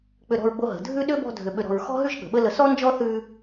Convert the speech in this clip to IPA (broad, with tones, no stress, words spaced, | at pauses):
k͡pʏ˧ɾɔ̤˧ɹɡ͡bo˧ɦə̤˨ dʱʉ˦ɗʏ˦ bɔ̤˧dʱʏ˨ɓʏ˨ɾɔ̤˨ɹ xɔ̤˦ɦʉ˦ʒ ɠə̤˨ɓə˦lə˧ sɔ˦nd͡ʒɔ˦θʉ˧